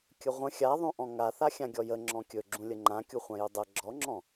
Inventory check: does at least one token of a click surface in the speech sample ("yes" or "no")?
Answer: yes